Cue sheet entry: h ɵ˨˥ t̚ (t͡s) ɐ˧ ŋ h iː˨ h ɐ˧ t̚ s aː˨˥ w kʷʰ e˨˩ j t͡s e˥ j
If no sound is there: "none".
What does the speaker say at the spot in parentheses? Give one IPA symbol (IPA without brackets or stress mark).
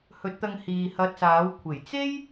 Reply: t̪